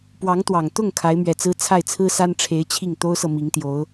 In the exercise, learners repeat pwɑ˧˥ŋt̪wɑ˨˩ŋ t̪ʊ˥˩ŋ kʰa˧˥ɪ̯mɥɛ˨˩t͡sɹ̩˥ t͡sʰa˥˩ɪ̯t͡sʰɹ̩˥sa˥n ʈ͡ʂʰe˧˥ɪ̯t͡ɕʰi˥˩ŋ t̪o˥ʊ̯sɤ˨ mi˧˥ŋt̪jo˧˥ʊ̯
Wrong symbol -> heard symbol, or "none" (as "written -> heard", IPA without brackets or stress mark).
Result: none